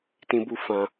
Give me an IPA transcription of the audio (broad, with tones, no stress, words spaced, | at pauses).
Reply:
tĩ˧bu˧fã˧